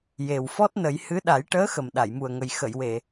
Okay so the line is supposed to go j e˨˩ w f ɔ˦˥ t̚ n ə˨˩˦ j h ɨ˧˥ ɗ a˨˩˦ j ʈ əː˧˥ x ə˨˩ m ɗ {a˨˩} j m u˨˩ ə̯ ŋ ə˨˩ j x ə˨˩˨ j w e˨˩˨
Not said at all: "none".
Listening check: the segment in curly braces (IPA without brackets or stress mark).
a˨˩˨